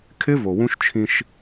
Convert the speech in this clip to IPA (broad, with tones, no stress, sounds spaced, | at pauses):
kʰ ɪ˦ v o˨ w ũ˦ ʃ t͡ʃʰ ĩ˦ ʃ